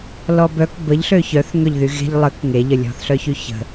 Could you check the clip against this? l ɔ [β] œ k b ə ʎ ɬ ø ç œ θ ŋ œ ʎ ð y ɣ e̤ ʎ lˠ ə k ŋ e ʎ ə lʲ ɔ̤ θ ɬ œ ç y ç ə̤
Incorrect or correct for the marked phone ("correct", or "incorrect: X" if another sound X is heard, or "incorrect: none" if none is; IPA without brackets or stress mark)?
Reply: incorrect: b